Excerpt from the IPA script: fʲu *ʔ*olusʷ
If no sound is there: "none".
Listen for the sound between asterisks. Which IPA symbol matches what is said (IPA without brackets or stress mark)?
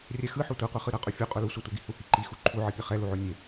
qʼ